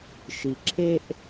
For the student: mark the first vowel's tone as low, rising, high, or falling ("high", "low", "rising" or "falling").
low